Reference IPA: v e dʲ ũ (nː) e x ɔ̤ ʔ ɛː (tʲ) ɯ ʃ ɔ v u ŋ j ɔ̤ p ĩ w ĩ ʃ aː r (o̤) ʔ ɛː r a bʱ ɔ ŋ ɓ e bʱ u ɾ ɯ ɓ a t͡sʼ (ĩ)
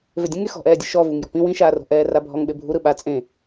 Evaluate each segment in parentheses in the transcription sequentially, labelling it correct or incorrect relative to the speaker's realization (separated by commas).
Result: incorrect, incorrect, correct, incorrect